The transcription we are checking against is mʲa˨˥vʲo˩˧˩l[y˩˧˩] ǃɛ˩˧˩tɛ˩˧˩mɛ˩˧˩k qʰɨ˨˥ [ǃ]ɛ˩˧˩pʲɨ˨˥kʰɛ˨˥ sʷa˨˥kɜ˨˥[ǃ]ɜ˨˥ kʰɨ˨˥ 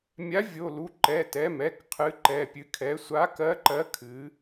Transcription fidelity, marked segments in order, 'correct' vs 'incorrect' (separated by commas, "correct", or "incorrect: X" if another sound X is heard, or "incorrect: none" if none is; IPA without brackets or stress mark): incorrect: u˩˧˩, correct, correct